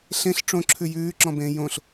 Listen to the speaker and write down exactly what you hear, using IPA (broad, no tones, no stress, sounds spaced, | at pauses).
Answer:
ɬ ẽ ɬ ʈ͡ʂ õ ǁʰ ʉ j ʉː ǁ ɔ̃ b ẽː j õ ɬ